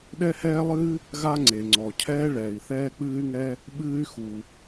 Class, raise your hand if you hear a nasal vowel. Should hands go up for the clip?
no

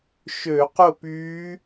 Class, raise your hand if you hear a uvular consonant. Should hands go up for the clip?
yes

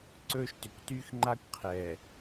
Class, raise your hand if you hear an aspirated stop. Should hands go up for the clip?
yes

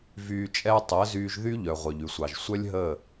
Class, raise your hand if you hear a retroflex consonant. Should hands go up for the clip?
no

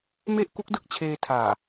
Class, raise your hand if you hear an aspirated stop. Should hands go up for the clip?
yes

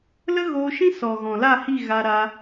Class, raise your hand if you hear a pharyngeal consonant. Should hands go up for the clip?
no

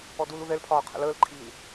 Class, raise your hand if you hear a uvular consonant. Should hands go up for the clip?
yes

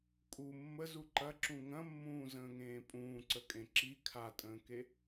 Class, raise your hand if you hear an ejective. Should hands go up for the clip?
yes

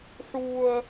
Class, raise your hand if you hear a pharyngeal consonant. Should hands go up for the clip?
yes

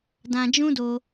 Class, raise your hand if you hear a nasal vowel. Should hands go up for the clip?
yes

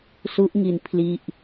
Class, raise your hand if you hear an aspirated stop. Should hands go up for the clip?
yes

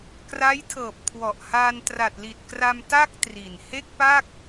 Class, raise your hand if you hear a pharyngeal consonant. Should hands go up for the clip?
no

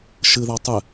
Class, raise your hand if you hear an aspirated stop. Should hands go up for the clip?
no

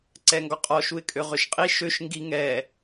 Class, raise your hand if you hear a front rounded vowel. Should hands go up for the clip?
yes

